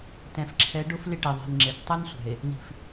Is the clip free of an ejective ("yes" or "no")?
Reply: yes